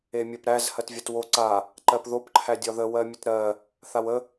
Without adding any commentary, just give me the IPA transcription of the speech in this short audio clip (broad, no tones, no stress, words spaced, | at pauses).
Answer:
emʲɜpɾæz hɜtvʲatwo ǀa | ǃɜpðop ǃʰædʲɒðə wɜmʲətɾɜ | θawə